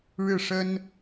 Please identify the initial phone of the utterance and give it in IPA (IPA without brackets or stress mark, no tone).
ɻ